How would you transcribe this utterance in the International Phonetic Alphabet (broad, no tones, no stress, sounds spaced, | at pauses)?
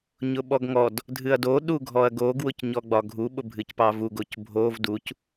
ɲ ʊ ɓ ɔ ɡ ŋ ɔ d | dʱ ɨ ɐ̯ d o ɗ u ɡʱ ɔ ɐ̯ ɡ o ɡ w ʊ c ɲ ɔ ɡ͡b ɒ ɡʱ u ɓ ʊ bʱ ɨ c p ɑ v u ɡ o c bʱ o v d u c